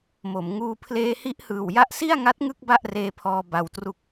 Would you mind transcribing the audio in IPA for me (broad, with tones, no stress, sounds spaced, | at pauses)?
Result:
m o˩˦ m ŋ uː˧ pʰ l eː˧ h i˦˥ ʔ h ɯː˨˩ w j a˦˥ ʔ s i˥˩ a̯ ŋ a˦˥ t̚ ŋ ɯ˥˩ k̚ b a˥˩ ʔ r eː˧ pʰ ɔː˧ b a˧ w t r u˥˩ k̚